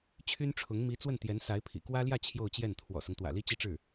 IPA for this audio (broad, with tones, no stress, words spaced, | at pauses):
t͡ɕʰy˥nʈ͡ʂʰʊ˧˥ŋ mi˧˥ t͡swə˥˩nt̪jɛ˧˥n sa˧˥ɪ̯ pʰḭ˨˩ kwä˥ljä˥˧ t͡ɕʰjo˥˧ʊ̯t͡ɕjɛ˥˩n t̪ʰwɔ̰˨˩sʊ˦ŋ t̪wä̰˨˩li˥t͡ɕi˥˧ʈ͡ʂɻ̩˥˩